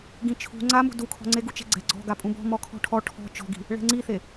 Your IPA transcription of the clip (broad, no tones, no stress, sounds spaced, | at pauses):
ɡ ĩ t͡ʃʰ ṳ ŋ͡ǀ a m ṳ d u kʰ ɔ̤ ŋ͡ǀ e ɡ u t͡ʃ ɛ̤ ɡ͡ǀ ɛ̤ ɡ͡ǀ ɔ̤ ɡ a pʼ ũ b ɔ̤ m ɔ kʰ ɔ̤ ʈʰ ɔ ʈʰ ɔ̤ t͡ʃ ɔ̤ ɡ i̤ | ɭ ɛ̤ ŋ͡ǀ i θ e